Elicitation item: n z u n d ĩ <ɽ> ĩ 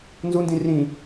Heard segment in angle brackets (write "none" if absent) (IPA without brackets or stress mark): r